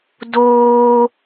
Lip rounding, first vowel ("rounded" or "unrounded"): rounded